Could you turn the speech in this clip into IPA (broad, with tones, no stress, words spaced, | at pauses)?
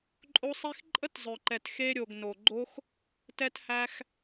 ǃʼo˧sˤi˧x ǃʼə˦tzˤœ˨ǃɛ˨t xe˧ɾʲo˨ɡ no˨ ɡ͡ǃo˦x | tɛ˧thæ˧x